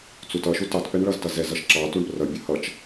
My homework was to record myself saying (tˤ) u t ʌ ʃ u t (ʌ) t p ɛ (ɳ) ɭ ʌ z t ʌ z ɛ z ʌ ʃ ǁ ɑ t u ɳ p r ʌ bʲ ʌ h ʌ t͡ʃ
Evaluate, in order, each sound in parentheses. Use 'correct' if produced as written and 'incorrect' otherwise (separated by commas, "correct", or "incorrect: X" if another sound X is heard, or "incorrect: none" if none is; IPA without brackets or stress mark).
incorrect: t͡s, incorrect: ɑ, correct